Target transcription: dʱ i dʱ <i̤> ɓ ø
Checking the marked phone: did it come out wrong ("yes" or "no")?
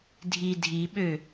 yes